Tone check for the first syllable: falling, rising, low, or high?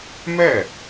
falling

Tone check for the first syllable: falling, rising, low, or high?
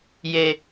high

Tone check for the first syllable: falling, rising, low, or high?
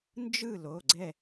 falling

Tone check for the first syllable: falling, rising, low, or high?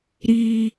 low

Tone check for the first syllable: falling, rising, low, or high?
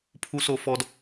high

